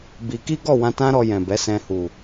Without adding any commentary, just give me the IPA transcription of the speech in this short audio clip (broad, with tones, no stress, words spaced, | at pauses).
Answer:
bi˧ ki˦ɡɔ˦˨wã˧ tã˦ɾɔ˧jɛ̃˨ bɛ˨˦sɛ̃˧ hu˨